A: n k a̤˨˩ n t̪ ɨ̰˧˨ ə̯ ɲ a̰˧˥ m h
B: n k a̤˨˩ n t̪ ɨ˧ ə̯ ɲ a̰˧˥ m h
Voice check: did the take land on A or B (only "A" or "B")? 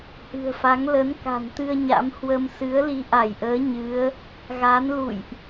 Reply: B